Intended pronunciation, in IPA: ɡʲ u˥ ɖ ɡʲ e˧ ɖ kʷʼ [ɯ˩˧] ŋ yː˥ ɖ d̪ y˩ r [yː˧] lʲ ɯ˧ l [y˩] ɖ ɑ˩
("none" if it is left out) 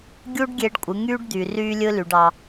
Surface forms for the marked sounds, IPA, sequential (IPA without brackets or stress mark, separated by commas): ɯ˩˧, yː˧, y˩